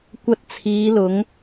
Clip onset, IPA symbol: kʷ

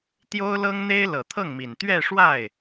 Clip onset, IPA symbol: t̪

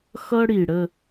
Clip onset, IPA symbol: x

